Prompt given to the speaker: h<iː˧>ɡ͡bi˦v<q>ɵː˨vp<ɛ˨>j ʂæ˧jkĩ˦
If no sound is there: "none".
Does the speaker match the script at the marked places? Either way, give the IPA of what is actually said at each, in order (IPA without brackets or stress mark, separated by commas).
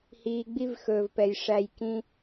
iː˧, x, ɛ˨